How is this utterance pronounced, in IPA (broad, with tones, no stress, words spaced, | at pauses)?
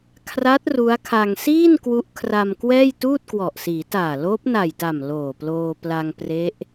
kʰra˦˥t̚ ru˦˥a̯ kʰa˧ŋ siː˥˩n kwu˦˥ʔkʰra˧mkwɛː˥˩j tuː˥˩t̚kwɔ˨˩ʔsiː˩˦taː˨˩ loː˦˥p̚na˨˩jta˨˩m loː˨˩ploː˧pla˧ŋ pre˦˥ʔ